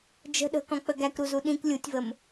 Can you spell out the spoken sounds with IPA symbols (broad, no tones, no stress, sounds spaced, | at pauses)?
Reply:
d͡ʒ ə̤ ɗ ə̤ k ɔ̃ k͡p ə ɡ æ k ɾ u z u ɗ ĩ k lʲ u tʲ v ə m